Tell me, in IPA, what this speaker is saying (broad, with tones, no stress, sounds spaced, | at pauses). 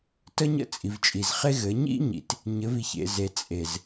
t ə˦ ɲ ə̰˦˨ t͡sʼ i˨ v t͡ʃʼ i˨ z χ e˦ ɣ ɘ˨˦ ɲ ḭ˦ ɲ ḭ˨ t | ɲ ɘ˨˦ v i˨ ç ḛ˨ z e˨ t͡sʼ e˨ z